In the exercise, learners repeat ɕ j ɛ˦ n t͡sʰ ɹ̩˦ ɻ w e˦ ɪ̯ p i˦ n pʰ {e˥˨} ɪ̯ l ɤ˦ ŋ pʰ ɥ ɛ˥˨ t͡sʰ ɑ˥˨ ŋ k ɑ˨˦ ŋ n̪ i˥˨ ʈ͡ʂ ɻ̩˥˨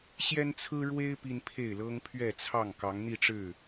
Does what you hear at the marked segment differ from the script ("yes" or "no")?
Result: no